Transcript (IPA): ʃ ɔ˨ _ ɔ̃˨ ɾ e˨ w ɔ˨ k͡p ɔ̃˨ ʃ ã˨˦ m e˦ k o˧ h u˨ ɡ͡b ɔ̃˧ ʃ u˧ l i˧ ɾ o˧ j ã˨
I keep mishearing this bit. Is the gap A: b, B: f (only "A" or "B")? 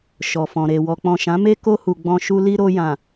B